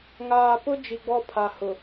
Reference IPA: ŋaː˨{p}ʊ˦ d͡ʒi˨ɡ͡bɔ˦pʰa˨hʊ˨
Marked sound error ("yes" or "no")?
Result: no